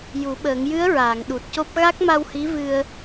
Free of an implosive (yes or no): no